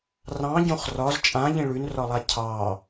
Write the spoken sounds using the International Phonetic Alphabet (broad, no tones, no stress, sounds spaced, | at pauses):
r ɑ̃ ɟ õ χ r ɒ z t͡ʃʼ ã ʎ ĩ ɭ ʉ n r ɒ lˠ a cʰ ɑ